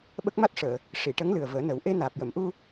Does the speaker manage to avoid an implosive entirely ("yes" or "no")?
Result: no